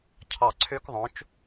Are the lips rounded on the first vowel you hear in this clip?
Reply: no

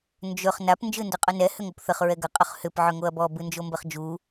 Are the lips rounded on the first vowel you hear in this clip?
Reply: yes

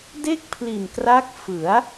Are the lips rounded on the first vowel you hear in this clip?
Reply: no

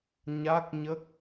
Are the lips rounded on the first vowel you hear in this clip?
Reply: no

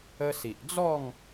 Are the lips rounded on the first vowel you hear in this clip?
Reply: no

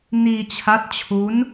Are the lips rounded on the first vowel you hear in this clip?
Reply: no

